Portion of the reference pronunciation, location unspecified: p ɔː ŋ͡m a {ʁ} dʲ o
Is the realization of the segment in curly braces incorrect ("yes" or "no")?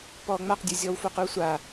yes